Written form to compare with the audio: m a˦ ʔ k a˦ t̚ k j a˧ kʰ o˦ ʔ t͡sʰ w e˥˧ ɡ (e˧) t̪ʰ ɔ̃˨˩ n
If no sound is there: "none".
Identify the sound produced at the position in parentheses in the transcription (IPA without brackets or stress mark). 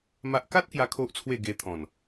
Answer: e˧